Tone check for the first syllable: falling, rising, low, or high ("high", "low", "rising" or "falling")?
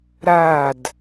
falling